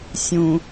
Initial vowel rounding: rounded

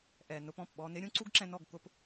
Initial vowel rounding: unrounded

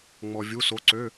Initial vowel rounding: rounded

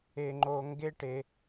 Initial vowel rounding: unrounded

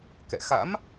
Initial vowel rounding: unrounded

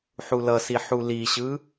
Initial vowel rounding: rounded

